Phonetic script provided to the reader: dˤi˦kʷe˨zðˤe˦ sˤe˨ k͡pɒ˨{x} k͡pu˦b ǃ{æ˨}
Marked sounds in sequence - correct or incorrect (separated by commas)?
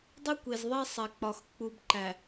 correct, correct